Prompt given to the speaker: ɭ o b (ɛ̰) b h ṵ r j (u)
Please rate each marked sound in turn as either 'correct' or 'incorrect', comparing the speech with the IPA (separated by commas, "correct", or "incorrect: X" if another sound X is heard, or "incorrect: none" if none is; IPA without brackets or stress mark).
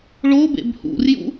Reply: incorrect: ḛ, incorrect: ṵ